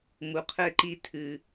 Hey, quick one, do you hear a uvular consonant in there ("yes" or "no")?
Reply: yes